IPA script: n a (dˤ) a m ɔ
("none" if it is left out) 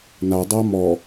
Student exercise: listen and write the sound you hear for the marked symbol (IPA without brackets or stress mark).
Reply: dˤ